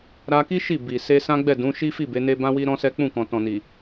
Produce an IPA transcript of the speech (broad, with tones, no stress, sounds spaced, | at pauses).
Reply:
ɾ a˧ k i˦ ʃ i˦˨ b i˨ s e˧ s ã˦ ɡ͡b ɛ˦˨ d ũ˨˦ ʃ i˦ f i˦˨ b e˨˦ n e˦ b ã˦ w i˦ ɾ ɔ̃˦ s ɛ˦ k͡p ũ˦˨ k ɔ̃˨ t ɔ̃˨ n i˨